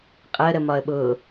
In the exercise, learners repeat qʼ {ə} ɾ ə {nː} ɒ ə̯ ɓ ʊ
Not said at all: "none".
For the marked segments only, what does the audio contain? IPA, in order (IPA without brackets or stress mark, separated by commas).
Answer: ə, m